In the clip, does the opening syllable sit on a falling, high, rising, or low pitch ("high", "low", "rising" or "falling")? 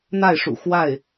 falling